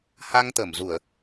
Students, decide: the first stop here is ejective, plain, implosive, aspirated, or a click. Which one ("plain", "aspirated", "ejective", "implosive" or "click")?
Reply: plain